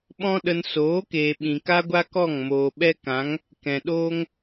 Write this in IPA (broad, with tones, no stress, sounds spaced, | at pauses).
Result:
ɓ ɔ̃˦ ɗ ə˧ n s oː˨˦ k eː˨ ɓ ĩ˨ k a˦ ɡʷ a˦ k ɔ˦˨ ŋ m oː˨ ɓ ɛ˦ k ã˨˦ ŋ | k ɛ̃˨ ɗ oː˦ ŋ